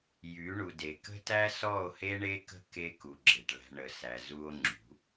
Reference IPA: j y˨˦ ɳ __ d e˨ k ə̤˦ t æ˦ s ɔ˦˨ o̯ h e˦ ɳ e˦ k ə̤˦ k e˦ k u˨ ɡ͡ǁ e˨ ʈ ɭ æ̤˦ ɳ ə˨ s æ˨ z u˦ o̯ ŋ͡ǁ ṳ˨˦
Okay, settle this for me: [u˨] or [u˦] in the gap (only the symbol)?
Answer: u˨